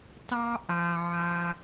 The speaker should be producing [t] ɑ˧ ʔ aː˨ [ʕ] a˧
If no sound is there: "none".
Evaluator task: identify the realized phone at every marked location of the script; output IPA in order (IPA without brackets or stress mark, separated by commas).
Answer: t, ʕ